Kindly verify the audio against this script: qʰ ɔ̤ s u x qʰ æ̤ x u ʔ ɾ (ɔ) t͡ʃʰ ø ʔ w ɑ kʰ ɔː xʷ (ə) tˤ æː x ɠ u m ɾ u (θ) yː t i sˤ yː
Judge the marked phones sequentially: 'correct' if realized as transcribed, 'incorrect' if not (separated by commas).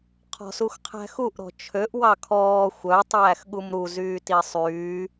incorrect, incorrect, incorrect